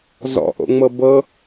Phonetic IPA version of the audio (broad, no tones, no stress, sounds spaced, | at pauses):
z ɔ̰ ʔ o̰ ŋ͡m ɤ b ɤ